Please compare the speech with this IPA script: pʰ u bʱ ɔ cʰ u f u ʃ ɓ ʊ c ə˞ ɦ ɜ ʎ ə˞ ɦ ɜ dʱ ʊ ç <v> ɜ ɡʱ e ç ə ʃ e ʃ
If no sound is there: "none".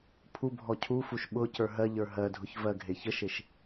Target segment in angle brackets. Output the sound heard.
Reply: v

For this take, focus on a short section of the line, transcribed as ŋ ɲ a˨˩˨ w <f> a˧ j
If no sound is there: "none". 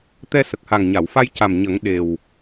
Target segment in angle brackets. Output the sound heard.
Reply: f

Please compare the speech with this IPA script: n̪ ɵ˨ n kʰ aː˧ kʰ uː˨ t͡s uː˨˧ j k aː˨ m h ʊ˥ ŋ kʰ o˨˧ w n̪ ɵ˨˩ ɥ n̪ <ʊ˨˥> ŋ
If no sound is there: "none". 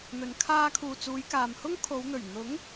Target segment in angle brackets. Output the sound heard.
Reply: ʊ˨˥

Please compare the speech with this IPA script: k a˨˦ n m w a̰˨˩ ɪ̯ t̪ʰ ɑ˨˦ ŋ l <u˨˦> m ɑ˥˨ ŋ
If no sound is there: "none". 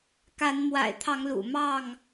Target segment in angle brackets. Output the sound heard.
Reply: ṵ˨˩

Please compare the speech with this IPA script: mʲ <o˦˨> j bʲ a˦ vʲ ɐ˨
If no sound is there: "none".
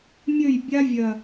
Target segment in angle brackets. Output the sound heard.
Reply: ɵ˦˨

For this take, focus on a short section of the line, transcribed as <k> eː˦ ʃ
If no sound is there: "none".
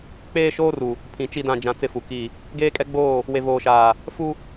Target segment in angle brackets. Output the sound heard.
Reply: k͡p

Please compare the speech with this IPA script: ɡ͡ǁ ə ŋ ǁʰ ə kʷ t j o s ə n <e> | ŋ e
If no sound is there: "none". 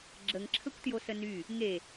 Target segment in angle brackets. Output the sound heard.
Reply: y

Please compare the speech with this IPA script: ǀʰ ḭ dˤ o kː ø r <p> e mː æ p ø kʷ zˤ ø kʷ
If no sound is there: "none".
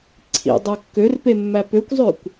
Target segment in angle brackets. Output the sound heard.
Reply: p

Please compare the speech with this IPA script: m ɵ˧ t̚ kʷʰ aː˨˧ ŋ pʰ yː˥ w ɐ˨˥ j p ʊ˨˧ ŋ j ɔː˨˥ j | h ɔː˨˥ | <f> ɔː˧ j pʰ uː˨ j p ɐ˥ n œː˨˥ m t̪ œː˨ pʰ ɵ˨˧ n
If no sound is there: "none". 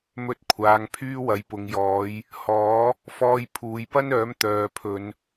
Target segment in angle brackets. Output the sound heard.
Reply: f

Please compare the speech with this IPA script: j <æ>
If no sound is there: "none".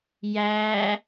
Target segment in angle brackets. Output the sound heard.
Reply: æ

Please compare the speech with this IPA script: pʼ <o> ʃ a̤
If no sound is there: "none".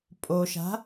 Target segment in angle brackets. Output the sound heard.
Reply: o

